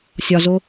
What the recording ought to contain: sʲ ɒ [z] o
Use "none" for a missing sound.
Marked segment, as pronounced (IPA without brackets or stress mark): z